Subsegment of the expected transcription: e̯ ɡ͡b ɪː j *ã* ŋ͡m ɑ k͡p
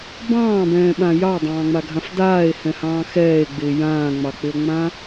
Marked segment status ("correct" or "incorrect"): incorrect